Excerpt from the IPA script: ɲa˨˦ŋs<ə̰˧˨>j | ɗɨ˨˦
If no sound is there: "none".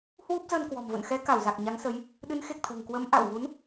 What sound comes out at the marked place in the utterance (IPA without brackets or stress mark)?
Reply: ə˨˦